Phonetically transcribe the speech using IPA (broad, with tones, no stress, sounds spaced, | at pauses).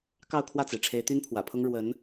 k ɑ˥˧ ʊ̯ kʰ w ä˥˩ t͡s e˩ ɪ̯ ʈ͡ʂʰ e˧˥ ɪ̯ t̪ y˥ n pʰ w ä̰˨˩ pʰ ʊ˥ ŋ ɻ w ə˧˥ n